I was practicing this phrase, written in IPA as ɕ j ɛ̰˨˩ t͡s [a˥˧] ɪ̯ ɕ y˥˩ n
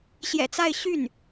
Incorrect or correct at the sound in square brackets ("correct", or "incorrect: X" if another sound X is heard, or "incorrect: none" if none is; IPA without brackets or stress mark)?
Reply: correct